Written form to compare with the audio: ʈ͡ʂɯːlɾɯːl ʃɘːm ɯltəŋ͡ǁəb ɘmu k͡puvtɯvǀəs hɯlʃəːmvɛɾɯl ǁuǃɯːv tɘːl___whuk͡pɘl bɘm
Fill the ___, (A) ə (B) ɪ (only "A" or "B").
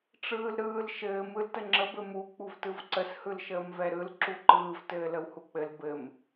A